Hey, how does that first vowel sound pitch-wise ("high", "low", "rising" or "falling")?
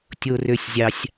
low